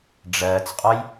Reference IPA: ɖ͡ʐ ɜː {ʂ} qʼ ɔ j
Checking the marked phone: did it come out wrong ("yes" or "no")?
yes